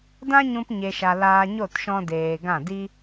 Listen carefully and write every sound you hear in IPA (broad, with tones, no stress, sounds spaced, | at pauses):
d ã˦ ɲ ũ˧ p ɲ e˨ ʃ a˨ l aː˧ ɲ o˦˨ t ʃ ɔ̃˧ d eː˨ ɡ ã˦˨ d i˦